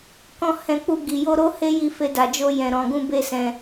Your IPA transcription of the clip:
k ɔ̃˦ h ɛ̃˧ k͡p u˧ ɡ i˨ j o˧ ɾ o˦ h e˦ j i˧ f e˧ d a˨ d͡ʒ o˧ j ɛ̃˨ ɾ ɔ̃˨ ɡ ũ˧ b e˦ s ɛ̃˧

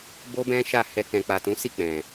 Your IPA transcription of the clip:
b o˦ b ɛ̃˦ ʃ a˦˨ h ɛ˧ k ɛ̃˨ k͡p a˨ t ũ˨˦ s i˦˨ k͡p ɛ̃˨

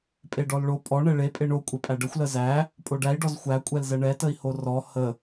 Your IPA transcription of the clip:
pʼ e ɖ ɔ l ɭ o pʼ ɔ ɳ ɛ ɭ e pʼ e ɳ o kʷʼ e pʼ æ ɖ ə xʷ l ə z æ | pʼ o ɖ æ i̯ ɖ ɔ z xʷ æ kʷʼ ɛ l z ɛ ɳ ɛ t ə i̯ h o r ɔ h ə

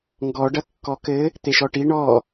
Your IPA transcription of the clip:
ŋ ɡ ɔ ɖ ɐ kː ɔ k ɘ | t̪ e ʃ ɔ ʈ i ɳ ɔ

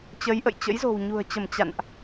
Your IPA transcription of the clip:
t͡ɕ ə˨˦ j ʔ ə̰˧˨ j t͡ɕ ə̰˧˥ j z o̤˨˩ w ɲ ṳ˨˩ ə̯ t͡ɕ ə˧˩ m t͡ɕ a̰˧˨ n ʔ

